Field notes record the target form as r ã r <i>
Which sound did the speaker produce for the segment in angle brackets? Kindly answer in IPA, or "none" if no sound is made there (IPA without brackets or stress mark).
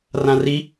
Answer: i